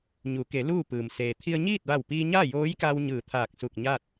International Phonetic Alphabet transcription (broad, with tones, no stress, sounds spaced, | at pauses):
ɲ u˩˧ k e˩˧ l uː˥˨ p ɯː˩ m s eː˩ t̪ʰ i˧ ə̯ ɲ iː˥˨ t̚ ʋ a˧˩ w p iː˧ ɲ a˥˨ j oː˧˥ j k a˧ w ɲ ɯː˧˩ t̪ʰ aː˧˩ k̚ s u˧˩ k̚ ɲ a˥˨ t̚